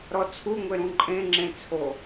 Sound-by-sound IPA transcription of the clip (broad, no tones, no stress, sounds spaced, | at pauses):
ɾ ɔ t͡sʰ u ŋʷ e ɾ ũ ǃʼ ẽ ŋ͡ǁ ẽ t͡sʰ o